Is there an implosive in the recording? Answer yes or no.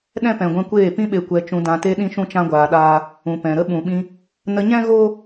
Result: yes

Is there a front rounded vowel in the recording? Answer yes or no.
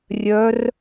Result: yes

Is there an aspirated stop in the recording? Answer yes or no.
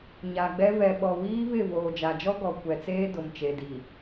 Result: no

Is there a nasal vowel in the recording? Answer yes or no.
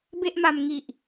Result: no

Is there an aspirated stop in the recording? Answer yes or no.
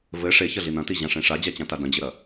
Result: no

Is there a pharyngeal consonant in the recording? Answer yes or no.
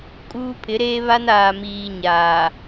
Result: no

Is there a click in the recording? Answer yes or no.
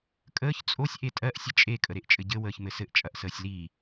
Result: no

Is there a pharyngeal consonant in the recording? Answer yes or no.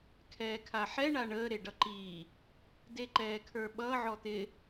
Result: yes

